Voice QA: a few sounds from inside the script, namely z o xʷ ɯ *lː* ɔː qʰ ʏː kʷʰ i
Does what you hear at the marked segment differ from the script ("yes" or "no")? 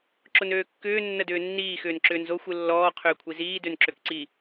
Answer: no